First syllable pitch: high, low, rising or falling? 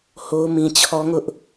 high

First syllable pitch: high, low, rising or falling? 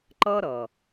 high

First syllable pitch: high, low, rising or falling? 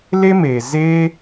high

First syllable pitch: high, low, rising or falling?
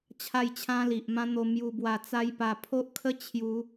falling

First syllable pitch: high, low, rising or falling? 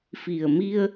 low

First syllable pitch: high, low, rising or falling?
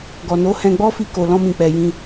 low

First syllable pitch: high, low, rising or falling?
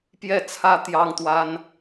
falling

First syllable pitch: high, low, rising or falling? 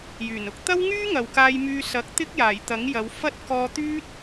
low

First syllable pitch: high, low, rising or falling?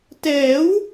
rising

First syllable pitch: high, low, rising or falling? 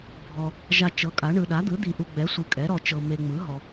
low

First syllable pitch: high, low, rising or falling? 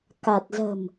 low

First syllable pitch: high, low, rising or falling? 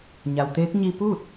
low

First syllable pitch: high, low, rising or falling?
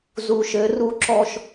low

